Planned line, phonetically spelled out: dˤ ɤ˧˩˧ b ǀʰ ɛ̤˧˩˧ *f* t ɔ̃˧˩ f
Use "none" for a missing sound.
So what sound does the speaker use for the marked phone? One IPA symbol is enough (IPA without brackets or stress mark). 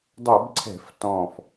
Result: f